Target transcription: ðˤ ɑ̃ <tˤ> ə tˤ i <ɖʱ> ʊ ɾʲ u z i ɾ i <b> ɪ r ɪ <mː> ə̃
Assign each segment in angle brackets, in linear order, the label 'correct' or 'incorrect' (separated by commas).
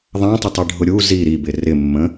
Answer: correct, correct, correct, correct